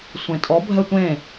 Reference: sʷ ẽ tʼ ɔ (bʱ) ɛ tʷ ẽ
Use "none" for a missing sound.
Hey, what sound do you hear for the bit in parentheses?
bʱ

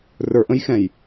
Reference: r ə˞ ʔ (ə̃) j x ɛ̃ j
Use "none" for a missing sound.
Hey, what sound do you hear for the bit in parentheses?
ə̃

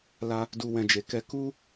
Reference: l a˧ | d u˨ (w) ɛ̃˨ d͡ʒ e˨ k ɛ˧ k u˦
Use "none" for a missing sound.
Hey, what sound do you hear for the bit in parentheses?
w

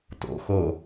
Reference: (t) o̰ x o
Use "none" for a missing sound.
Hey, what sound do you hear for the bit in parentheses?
t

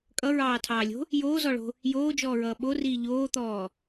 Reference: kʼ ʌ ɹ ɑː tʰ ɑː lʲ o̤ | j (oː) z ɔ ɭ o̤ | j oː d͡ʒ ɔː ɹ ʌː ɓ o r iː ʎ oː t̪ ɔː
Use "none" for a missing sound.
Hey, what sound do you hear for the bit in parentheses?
oː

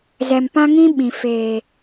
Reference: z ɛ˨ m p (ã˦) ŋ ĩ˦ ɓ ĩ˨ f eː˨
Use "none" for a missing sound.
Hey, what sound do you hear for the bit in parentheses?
ã˦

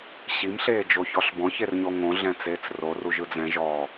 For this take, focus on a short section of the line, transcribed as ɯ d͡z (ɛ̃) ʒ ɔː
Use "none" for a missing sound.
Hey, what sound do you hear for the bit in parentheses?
ɛ̃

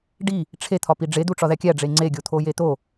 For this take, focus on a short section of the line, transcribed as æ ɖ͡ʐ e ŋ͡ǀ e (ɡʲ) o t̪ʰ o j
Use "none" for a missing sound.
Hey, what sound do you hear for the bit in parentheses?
ɡʲ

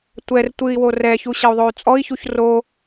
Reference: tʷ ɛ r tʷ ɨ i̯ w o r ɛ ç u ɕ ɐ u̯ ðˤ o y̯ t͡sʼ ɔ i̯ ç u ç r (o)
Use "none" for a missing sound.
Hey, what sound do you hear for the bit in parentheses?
o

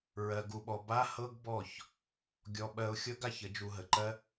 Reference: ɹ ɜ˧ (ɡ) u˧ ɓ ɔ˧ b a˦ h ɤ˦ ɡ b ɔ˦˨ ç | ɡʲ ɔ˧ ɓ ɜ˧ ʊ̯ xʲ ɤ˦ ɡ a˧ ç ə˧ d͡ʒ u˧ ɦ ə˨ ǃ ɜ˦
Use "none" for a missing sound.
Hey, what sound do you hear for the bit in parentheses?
ɡ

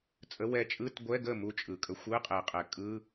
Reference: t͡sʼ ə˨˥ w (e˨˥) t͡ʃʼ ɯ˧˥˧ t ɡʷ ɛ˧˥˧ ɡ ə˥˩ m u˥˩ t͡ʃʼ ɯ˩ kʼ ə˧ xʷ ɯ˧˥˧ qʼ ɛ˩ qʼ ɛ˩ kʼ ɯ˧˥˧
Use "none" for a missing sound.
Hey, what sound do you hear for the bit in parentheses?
ɛ˨˥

